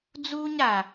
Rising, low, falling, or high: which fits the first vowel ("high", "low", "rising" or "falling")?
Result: high